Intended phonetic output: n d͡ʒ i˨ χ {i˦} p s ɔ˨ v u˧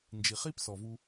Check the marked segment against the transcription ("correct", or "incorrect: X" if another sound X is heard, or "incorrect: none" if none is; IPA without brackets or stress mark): correct